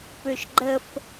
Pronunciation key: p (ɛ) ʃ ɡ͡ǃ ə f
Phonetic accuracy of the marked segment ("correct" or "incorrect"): incorrect